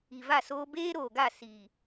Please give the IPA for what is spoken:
i˨ v a˦˨ s oː˦ b eː˦ ɾ oː˨ ɡ a˦˨ s i˨

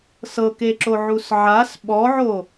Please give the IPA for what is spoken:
s ɤ k e ǁ o ʕ u s ʕ a s ɓ ɔ ʕ o

